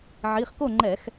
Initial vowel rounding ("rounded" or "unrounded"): unrounded